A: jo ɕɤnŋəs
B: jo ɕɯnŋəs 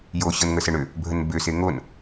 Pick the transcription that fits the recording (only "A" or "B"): A